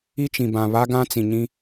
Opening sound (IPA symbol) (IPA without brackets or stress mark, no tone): i